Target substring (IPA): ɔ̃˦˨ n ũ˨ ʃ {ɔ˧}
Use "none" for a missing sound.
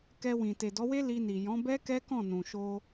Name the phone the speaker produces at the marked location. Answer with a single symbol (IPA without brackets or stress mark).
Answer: o˧